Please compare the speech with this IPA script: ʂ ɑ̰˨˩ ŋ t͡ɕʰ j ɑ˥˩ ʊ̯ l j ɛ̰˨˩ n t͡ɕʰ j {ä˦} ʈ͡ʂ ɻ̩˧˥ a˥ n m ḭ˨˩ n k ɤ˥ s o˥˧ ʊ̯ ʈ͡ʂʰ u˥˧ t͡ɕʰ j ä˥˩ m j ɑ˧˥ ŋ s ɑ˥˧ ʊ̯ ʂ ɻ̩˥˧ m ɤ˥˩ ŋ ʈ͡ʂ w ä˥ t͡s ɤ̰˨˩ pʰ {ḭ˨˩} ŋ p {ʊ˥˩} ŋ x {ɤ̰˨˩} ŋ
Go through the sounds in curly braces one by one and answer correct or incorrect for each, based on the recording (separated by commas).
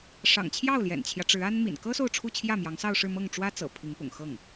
correct, incorrect, incorrect, incorrect